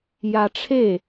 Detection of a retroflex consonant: present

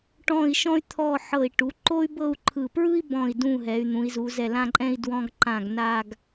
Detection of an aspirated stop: present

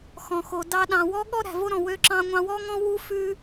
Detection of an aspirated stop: absent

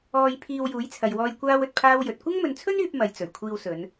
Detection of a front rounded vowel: present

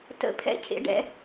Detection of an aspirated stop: present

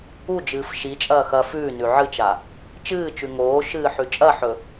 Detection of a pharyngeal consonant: present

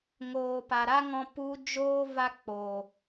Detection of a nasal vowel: present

